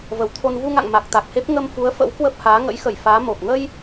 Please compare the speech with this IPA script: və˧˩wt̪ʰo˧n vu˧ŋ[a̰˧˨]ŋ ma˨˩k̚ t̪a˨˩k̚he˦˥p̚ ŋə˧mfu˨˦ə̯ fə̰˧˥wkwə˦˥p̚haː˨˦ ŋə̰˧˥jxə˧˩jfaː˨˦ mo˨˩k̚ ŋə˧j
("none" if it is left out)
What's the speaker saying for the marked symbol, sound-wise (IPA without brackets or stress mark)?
a̰˧˨